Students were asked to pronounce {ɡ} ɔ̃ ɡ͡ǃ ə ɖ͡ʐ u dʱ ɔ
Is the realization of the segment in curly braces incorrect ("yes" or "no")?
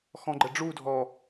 yes